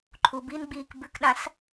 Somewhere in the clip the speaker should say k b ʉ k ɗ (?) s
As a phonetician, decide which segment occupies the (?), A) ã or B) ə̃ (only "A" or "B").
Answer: A